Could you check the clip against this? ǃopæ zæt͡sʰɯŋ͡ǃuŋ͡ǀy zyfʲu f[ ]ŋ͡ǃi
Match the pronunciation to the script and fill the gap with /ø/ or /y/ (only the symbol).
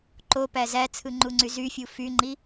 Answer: y